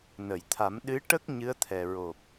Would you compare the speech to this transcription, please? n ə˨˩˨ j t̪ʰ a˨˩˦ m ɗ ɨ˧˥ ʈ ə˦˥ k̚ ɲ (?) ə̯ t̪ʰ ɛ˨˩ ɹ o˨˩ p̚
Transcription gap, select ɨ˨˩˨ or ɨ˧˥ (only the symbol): ɨ˧˥